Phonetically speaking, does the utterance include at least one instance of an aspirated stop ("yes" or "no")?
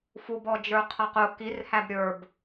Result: yes